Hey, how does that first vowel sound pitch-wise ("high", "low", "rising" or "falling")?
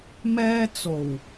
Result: high